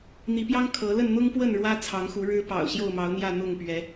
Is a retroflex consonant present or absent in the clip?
present